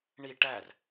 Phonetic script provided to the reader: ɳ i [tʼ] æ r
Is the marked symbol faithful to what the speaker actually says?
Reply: no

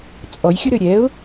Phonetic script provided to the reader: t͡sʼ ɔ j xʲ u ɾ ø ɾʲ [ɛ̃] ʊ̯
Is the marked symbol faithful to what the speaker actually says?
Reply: no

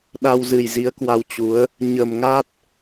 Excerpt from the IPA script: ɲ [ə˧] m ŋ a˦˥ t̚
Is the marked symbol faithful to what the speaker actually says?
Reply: no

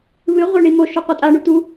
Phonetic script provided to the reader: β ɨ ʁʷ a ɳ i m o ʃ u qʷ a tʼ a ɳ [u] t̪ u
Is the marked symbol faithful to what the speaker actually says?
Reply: yes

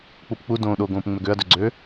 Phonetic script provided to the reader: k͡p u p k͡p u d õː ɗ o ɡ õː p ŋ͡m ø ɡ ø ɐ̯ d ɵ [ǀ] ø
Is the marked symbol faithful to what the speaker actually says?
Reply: no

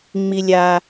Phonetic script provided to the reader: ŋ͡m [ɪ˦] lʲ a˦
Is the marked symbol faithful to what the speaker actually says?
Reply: no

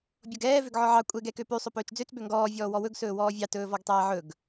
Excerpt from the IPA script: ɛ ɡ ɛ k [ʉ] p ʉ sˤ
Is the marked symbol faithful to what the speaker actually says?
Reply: no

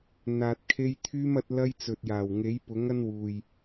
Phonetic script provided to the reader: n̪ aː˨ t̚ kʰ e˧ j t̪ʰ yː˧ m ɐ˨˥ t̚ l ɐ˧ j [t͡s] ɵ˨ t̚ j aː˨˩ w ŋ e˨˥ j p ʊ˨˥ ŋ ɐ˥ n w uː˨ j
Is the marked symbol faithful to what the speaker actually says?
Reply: yes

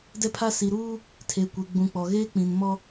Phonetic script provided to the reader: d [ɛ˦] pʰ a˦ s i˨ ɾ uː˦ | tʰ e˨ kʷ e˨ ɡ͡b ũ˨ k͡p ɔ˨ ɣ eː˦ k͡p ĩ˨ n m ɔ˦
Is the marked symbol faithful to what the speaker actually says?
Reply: yes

